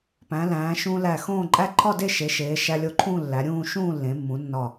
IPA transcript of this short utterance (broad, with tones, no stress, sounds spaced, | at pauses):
p æ̃˩˧ l æ̃ː˩˧ ʃ ũ˧ l æ˧˩ x õː˥˧ ǃʼ æ˥ ǃʰ ɒ˥˧ d e˥˧ ʃ e˩˧ ʃ eː˩˧ ʃ æ˧ lʲ o˧˩ ǃʰ ũ˥˧ lː æ˩˧ ɾʲ ũː˥˧ ʃ ũː˥˧ lː ẽ˩˧ mː ũ˩˧ nː ɒ˧˩